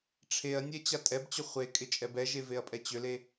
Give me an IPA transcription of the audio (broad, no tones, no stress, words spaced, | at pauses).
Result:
ʈ͡ʂʰeɐ̯nʲɛ t͡ɕatʼɛbt͡ɕʏ χʷekʼɪ t͡ʃʼɛbɛʒe veɐ̯pʼɛt͡ɕʏle